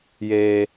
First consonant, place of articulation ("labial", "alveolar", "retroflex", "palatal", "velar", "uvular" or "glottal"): palatal